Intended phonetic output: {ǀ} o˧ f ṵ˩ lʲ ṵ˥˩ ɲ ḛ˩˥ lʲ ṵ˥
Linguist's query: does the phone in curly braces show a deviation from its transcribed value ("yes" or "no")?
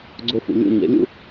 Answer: yes